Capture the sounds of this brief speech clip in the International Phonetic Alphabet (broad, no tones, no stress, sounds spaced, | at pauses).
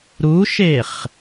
ɾ u ʃ e χ